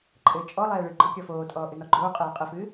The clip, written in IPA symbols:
ǃʼ ɘː t͡ʃʼ ɔ lˠ ɛː ɭ ɨ ɡ͡ǃ ɔ kʲ ɔ f oː tʼ ɔː ʔ ɨ n ɔ ɡ͡ǃ oː qʼ ɛː qʼ ɘ f ɨː

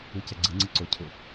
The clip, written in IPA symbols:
ɯ c ɛ ɡ͡ǀ ɯ ŋ͡ǀ ɯ ǀ o cʰ ʊ

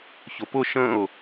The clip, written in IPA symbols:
ç ʊ p ʊ ʃ ə̃ ʊ̯

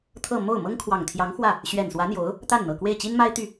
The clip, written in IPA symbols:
t̪ʰ ɤ˥˧ m o˥˩ ʊ̯ m ɤ˥ ŋ kʰ w ɑ˨˩ ŋ t̪ʰ j ɑ˧˥ ŋ x w ä˥˩ | ɕ ɥ ɛ˨˩ n s w ä˧˥ n̪ j o˧˥ ʊ̯ | t̪ a˥˩ n n̪ ɤ˨˩ k w e˥˩ ɪ̯ t͡ɕ i˥ n m a˥ ɪ̯ t̪ y˥˩

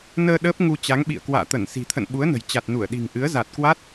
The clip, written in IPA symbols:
n əː˧ ɗ əː˦˥ p̚ ŋ u˧ t͡ɕ a˨˦ ŋ ɓ ḭ˧˨ ə̯ k w a̰ː˧˨ t̪ ə˧˩ n s i̤˨˩ t̪ʰ ə̰˧˨ n ɓ u˨˦ ə̯ n ə̤˨˩ j t͡ɕ a˨˩ t̚ n u˧˩ ə̯ ɗ i̤˨˩ ŋ ʔ ɨ˨˦ ə̯ z a˨˩ t̚ k w a˦˥ t̚

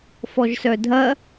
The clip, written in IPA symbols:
f ɔ ʒ s œ dʱ ɐ

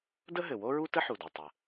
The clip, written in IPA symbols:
d ə˥ ɦ ɘ˩ w o˥ ɹ u˥ t ə˥ ħ u˩ d o˩ tˤ ə˩

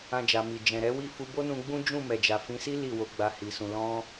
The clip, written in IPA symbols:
ã˧ d͡ʒ a˨ m i˨ d͡ʒ ɛ̃˨ ɾ ɛ˨˦ w i˦˨ f u˧ b o˦ n ũ˧ ɡ͡b ũ˦ d͡ʒ ũ˦˨ m ɛ˨ d͡ʒ a˨ f ĩ˨˦ s i˦ l i˦˨ w o˨˦ ɡ͡b a˧ h i˨ s ũ˨ l ɔ̃˧

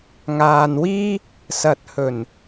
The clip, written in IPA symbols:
ŋ aː˨ n w iː˥ | s ɐ˨ t̚ h ɵ˨˩ n

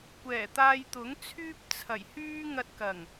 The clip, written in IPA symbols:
kʷ ɛː˨˩ t̪ aː˧ j t̪ ʊ˨˥ ŋ t͡sʰ yː˥ p̚ t͡sʰ ɐ˨˩ j h yː˥ ŋ ɐ˧ t̚ k ɐ˨˩ ŋ

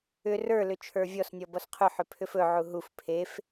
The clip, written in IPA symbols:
ʏ r ə˞ l ʏ t͡ʃʰ ə˞ vʲ ɔ s nʲ ɔ b ɔ s qʰ ʏ ħ ʏ pʰ ʏ f ɵ ʕ u ɦ u f pʰ e f

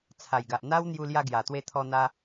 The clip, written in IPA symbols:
t͡sʰ a˨˩ j ɡ a˨ ʔ n̪ a˦ w n̪ j u˧ l j a˧ ɡ j a˨˩ t̪ w e˧ t̪ʰ ɔ˧ n̪ a˧

